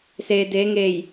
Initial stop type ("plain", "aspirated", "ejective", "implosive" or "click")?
plain